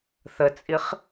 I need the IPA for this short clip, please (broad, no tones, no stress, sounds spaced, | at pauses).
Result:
θ ə t͡sʼ i χ